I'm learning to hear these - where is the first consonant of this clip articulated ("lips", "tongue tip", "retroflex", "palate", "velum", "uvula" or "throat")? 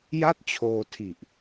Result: palate